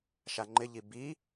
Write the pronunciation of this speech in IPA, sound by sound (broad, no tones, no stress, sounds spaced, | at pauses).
ʃ a ŋ͡ǃ ɪ ʎ i b i